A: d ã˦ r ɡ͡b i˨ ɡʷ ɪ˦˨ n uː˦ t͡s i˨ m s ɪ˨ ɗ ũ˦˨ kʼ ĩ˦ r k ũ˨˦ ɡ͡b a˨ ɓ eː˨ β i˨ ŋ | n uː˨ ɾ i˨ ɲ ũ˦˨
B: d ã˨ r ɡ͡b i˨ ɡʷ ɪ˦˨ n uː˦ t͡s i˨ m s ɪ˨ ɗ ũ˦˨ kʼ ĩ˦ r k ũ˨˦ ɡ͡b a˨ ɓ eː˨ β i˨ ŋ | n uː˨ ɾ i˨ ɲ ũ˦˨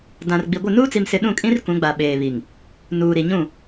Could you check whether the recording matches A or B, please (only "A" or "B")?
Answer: B